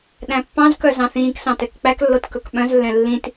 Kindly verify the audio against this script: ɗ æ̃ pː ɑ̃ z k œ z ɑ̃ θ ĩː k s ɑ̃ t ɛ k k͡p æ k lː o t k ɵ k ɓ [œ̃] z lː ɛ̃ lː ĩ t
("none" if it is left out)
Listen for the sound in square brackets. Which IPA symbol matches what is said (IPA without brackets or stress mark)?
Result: œ̃